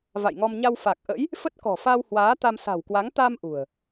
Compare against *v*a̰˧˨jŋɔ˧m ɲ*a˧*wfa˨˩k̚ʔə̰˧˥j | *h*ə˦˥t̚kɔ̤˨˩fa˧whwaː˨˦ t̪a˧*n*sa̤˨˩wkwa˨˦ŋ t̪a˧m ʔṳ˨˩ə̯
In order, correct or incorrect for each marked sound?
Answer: correct, correct, incorrect: f, incorrect: m

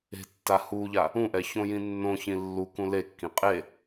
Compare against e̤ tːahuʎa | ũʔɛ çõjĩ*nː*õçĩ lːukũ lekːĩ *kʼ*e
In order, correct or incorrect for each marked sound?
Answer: correct, incorrect: qʼ

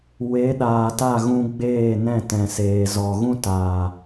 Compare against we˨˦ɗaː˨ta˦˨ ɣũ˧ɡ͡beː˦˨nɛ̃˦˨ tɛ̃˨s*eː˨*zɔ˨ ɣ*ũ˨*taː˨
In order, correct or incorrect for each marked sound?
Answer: correct, incorrect: ũ˦

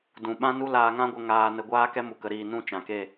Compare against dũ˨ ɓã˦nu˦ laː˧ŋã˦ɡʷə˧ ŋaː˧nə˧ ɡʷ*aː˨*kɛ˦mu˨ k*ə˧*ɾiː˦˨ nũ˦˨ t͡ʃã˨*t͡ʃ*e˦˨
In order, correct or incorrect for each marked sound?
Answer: incorrect: aː˦, correct, incorrect: k

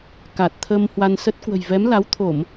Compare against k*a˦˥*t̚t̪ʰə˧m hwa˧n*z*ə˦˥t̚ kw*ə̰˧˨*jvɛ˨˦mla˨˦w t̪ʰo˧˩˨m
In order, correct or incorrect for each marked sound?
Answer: incorrect: a˨˩, incorrect: s, incorrect: ə̤˨˩

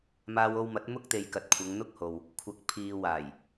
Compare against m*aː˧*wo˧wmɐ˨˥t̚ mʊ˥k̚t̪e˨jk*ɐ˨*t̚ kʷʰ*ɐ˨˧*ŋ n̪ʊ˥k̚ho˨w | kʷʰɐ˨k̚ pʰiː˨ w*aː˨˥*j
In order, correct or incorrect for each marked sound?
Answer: correct, correct, correct, incorrect: aː˨˩

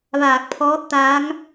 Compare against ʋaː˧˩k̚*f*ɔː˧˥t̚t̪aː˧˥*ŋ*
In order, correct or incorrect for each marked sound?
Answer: incorrect: pʰ, correct

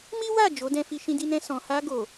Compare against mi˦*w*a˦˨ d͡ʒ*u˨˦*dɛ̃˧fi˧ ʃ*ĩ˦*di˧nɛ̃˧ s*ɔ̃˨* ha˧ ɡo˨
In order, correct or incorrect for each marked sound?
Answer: correct, incorrect: o˨˦, incorrect: ĩ˧, correct

